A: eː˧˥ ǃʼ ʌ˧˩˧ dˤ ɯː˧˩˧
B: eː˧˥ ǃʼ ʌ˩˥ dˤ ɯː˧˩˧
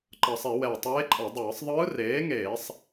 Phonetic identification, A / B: A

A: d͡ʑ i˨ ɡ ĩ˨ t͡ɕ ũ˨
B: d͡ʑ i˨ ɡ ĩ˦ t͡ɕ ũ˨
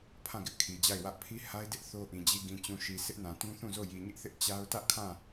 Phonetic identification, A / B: A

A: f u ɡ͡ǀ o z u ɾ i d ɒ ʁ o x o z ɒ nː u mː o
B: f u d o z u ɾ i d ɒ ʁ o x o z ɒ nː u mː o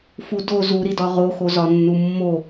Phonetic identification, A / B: B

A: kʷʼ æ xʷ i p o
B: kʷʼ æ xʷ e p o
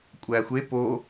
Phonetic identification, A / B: B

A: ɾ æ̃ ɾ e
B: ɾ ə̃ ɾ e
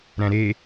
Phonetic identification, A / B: A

